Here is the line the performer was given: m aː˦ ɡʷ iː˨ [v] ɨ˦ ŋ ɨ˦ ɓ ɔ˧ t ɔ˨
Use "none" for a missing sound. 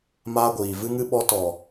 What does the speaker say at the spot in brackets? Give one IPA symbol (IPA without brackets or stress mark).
v